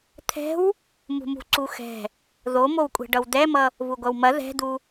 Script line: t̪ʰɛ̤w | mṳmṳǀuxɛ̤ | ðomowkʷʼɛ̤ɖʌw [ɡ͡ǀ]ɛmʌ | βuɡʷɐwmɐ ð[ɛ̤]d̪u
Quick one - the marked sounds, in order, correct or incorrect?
incorrect: d̪, correct

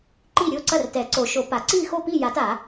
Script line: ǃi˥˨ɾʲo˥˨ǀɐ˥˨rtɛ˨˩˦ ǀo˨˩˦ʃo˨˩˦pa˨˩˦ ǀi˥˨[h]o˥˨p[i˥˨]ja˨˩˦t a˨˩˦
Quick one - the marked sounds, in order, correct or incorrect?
incorrect: x, correct

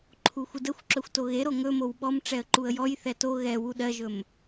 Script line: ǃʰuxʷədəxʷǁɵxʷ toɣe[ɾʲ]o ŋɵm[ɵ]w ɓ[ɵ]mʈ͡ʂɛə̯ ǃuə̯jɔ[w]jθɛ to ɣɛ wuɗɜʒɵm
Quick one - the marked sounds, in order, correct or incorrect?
incorrect: ɾ, incorrect: o, incorrect: ɔ, incorrect: none

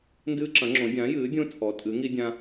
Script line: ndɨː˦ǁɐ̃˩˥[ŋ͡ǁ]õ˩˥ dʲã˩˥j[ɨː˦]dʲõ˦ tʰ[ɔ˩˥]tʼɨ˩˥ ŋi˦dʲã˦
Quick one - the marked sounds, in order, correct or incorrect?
correct, incorrect: ɨː˩˥, correct

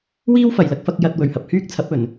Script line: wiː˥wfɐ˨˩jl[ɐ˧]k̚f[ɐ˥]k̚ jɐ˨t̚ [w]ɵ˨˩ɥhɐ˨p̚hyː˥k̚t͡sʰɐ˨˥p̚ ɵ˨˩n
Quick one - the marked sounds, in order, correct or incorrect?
correct, incorrect: ɐ˧, correct

